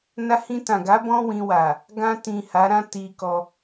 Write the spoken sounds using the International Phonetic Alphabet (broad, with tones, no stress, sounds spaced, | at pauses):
n a˧ h ĩ˧ t ã˨ ɡ a˨˦ b ɔ̃˦ w ĩ˧ w a˨ | ɡ ã˧ t ĩ˨ h a˨˦ ɾ ã˦ t i˧ k ɔ˧